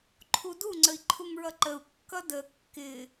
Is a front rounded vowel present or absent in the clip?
absent